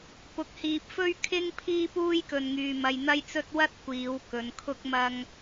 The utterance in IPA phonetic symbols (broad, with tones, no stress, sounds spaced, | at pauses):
p ʊ˨ k̚ h iː˨ p̚ f ɵ˥ ɥ kʰ ɪ˥ ŋ pʰ iː˥ p uː˥ j k ɵ˨ n ŋ yː˨ m ɐ˧ j n̪ ɐ˥ j t͡s ɵ˥ t̚ w ɐ˥ t̚ kʷ iː˨˧ w k ɵ˨˧ n kʰ ʊ˥ k̚ m ɐ˥ ŋ